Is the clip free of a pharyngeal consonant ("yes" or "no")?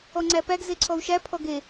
yes